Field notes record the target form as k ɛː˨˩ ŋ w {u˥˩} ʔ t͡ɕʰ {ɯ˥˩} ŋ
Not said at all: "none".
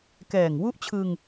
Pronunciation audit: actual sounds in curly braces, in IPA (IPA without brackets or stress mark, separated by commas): u˦˥, ɯ˧